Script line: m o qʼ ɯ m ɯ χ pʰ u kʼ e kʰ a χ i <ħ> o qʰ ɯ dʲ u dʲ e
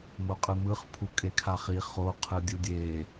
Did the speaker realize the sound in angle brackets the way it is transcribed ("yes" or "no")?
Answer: no